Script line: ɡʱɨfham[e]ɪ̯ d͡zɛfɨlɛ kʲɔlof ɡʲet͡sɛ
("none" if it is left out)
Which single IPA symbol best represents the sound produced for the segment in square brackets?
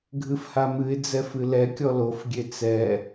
ɨ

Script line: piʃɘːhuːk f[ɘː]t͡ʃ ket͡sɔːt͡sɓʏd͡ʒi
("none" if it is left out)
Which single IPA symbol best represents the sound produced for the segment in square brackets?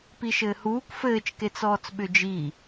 ɘː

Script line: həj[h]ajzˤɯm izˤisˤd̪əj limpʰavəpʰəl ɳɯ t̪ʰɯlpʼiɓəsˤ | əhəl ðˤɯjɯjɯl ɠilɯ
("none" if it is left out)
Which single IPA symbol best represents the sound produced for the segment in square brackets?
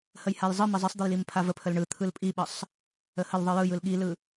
h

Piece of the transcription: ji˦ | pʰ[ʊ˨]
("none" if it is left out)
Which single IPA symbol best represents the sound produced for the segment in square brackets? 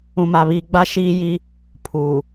u˨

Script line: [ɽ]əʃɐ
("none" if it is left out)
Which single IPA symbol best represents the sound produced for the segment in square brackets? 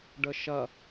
ɖ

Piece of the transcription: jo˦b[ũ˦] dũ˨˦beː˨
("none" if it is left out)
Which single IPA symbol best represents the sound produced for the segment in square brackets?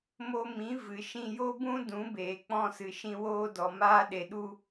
ũ˦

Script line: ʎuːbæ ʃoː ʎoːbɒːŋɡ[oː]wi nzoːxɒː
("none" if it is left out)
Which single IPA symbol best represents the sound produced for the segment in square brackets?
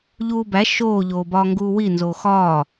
uː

